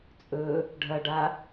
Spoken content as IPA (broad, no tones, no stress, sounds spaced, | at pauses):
t͡sʼ ɵ | ɖʱ ɐ ɖ a